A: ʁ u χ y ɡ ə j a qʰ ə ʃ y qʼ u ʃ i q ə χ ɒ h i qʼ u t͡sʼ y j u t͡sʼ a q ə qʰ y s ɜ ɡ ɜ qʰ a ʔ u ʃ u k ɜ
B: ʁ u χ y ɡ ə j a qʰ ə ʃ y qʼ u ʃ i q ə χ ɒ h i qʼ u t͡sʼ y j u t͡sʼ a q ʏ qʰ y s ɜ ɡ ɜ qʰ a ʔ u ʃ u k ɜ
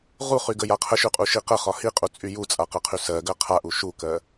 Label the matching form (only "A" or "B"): A